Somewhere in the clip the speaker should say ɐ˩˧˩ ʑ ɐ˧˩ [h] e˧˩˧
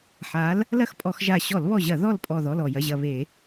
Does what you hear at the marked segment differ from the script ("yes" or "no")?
yes